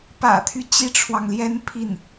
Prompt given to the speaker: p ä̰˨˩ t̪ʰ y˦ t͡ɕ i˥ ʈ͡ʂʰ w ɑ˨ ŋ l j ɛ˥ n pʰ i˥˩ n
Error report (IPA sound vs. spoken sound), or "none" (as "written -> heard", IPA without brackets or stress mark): none